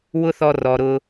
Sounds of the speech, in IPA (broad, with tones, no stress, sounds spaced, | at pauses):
w ʊ˦ θ ɔ˧ r ɔ˨ ɾ ʊ˧